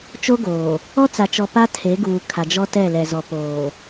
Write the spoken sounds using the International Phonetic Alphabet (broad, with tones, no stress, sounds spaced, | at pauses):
t͡ʃ o˦ ɡ oː˨ | ɔ˦ t͡s a˨ t͡ʃ ɔ˨ p a˦ tʰ e˨˦ ɡ uː˨ kʰ a˨ d͡ʒ ɔ˦ t ɛ˦˨ l ɛ˨ z ɔ˨ p oː˨